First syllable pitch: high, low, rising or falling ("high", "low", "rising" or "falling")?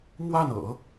falling